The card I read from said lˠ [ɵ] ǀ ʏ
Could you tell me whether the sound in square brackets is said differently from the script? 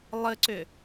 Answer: yes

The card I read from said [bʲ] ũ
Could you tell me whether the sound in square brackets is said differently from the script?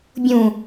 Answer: no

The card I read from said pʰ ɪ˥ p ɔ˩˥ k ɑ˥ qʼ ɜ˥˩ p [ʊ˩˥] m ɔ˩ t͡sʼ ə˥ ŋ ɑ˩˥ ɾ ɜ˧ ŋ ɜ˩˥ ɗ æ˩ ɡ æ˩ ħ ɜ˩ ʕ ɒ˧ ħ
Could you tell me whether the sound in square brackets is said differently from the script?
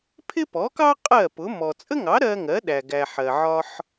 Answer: no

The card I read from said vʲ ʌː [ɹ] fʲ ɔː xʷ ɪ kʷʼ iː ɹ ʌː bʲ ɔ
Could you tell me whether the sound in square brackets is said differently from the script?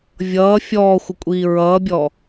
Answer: yes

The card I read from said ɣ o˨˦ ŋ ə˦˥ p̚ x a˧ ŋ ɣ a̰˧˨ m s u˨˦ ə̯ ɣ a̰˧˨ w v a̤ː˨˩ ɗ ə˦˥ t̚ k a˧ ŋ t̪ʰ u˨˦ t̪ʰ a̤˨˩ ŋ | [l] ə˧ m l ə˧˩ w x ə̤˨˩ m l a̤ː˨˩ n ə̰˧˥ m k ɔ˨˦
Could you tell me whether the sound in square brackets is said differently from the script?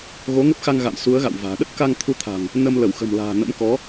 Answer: yes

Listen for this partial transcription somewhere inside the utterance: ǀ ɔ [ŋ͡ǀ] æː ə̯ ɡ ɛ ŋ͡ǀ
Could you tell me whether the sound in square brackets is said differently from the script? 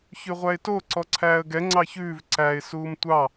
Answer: yes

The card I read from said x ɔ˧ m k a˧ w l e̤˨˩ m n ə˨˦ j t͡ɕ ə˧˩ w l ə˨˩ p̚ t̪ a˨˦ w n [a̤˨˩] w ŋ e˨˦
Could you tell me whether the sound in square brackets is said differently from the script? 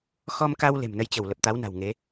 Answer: no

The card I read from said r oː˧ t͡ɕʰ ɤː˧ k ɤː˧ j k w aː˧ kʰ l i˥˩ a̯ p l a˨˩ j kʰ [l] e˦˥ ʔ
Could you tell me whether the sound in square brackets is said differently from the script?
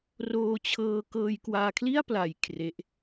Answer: yes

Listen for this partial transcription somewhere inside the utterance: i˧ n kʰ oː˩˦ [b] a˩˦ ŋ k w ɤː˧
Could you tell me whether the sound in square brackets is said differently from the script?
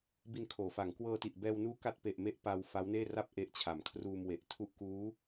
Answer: yes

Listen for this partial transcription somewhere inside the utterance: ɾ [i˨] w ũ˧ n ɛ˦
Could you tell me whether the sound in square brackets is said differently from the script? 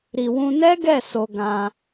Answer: no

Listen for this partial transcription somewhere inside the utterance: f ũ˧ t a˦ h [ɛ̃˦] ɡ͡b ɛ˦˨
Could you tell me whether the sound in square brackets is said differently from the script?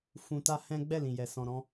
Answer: no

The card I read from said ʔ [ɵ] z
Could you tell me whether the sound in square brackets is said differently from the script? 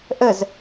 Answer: yes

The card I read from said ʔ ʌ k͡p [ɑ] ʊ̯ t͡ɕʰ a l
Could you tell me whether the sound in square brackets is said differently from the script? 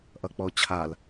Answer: yes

